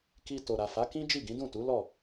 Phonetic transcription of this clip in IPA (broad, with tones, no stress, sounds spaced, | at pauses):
k i˧ t o˨ ɾ a˨ f a˨˦ k ĩ˦ d͡ʒ i˦˨ ɡ ĩ˨˦ d ũ˦˨ t u˨˦ l ɔ˦˨